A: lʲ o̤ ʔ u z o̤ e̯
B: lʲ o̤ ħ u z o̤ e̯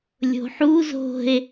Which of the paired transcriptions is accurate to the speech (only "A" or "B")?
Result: B